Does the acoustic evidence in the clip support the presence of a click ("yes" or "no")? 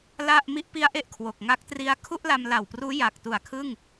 no